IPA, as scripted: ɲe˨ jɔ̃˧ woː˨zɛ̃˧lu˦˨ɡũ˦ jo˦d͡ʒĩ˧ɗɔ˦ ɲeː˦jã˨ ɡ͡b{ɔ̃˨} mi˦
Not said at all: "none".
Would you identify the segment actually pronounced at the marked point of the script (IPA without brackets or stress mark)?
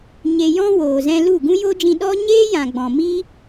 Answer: ɔ̃˨